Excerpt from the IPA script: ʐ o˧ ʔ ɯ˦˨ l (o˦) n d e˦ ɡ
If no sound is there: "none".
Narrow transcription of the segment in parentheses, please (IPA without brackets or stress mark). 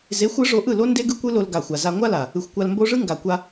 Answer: o˦